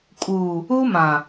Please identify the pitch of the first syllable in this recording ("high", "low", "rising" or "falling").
low